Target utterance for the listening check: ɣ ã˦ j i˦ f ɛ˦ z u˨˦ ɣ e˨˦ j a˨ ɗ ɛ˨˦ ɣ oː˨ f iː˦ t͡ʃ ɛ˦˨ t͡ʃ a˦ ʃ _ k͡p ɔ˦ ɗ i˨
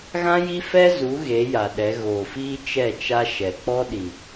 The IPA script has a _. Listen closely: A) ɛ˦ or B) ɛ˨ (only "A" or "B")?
B